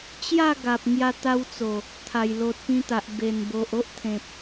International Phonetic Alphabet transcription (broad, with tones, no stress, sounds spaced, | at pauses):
t͡ɕ j a˥˧ ɡ a˨ p̚ ŋ j a˧ t̪ a˧ w t͡s o˨˩ | t̪ʰ a˨˩ j l o˨ t̚ p ĩ˧ t̪ a˨ ʔ b e˨˩ n b o˨ ʔ o˦ ʔ t̪ʰ ẽ˨ p̚